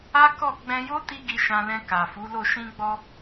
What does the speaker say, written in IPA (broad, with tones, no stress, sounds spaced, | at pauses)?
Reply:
a˦ k ɔ˦˨ ɡ͡b ɛ̃˧ j o˦ t i˦ ɡ i˧ ʃ ã˧ l ɛ̃˧ k a˨ f u˨˦ l o˦˨ ʃ ĩ˧ ɡ͡b ɔ˧